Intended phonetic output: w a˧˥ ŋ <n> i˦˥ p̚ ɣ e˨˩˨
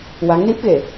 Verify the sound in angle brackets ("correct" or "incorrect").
correct